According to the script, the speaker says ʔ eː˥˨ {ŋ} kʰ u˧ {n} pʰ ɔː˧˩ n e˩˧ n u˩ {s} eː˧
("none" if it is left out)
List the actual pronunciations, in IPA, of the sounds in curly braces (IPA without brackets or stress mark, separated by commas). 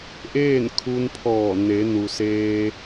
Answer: n, n, s